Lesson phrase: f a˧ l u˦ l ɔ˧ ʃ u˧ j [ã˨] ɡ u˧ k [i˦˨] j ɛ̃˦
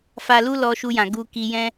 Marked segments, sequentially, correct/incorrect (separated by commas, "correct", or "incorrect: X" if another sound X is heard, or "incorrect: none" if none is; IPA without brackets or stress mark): correct, incorrect: i˧